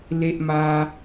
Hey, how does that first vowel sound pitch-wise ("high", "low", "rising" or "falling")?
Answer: high